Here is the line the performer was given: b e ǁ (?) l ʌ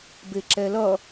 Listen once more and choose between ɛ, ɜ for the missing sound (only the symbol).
ɛ